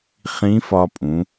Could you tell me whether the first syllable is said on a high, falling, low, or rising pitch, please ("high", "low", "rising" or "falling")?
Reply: rising